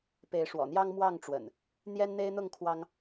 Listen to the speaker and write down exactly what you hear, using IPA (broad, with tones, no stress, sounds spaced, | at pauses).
p e˨˦ ɪ̯ ʂ w ɔ̰˨˩ n̪ j ɑ˦ ŋ m w ɑ˥˨ ŋ ʈ͡ʂ w ə̰˨˩ n | n̪ j ɛ˦ n n̪ e˦ ɪ̯ n̪ ʊ˥˨ ŋ kʰ w ɑ˦ ŋ